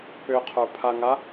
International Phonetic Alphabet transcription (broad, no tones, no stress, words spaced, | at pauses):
pʏqʰə˞pʰaŋa